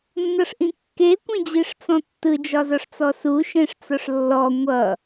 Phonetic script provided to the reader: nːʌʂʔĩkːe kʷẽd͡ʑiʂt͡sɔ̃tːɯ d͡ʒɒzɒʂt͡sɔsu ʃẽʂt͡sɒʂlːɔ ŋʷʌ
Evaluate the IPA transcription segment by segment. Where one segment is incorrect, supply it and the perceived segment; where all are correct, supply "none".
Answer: none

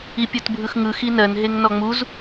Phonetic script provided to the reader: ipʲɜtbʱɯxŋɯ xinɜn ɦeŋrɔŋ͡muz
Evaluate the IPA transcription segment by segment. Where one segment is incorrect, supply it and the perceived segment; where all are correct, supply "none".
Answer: r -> n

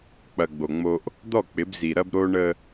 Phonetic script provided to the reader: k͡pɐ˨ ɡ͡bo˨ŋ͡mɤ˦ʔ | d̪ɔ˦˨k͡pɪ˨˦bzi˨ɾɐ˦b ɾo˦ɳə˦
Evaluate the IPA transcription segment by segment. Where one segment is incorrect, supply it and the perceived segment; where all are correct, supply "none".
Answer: ɤ˦ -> o˦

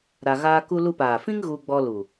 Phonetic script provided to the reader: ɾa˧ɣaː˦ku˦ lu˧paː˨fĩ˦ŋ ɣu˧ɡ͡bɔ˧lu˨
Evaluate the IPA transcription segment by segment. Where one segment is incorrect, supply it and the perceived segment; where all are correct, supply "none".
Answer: none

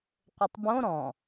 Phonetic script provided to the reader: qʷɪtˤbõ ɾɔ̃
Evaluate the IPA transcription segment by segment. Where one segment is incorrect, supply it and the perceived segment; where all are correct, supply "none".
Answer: none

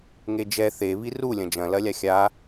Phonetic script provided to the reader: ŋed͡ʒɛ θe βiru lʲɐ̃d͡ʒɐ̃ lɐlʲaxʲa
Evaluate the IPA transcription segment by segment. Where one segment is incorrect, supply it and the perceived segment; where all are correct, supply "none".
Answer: none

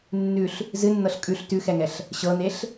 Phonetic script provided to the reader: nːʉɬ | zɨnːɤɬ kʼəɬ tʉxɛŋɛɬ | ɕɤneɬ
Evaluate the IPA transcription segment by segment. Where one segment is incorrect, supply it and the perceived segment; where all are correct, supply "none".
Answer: ə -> ʉ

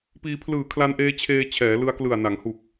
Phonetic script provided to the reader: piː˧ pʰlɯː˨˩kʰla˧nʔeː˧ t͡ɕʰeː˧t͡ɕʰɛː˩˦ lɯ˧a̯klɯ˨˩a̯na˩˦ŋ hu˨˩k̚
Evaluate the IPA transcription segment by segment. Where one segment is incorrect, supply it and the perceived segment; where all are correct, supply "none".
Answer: none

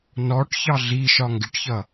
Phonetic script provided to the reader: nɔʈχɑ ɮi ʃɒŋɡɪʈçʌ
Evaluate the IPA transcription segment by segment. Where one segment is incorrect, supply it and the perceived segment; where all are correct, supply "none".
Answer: χ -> ç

